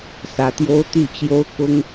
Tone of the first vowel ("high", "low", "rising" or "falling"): rising